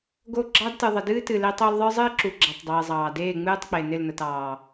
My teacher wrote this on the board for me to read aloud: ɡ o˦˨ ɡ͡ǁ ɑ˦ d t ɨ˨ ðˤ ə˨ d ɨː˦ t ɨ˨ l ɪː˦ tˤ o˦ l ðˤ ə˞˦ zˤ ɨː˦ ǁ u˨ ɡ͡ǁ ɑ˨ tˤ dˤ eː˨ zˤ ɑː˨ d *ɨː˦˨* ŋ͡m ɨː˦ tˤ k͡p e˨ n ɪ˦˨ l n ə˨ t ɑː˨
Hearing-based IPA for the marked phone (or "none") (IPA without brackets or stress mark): eː˦˨